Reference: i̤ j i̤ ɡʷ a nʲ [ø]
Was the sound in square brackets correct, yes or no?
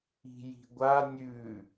no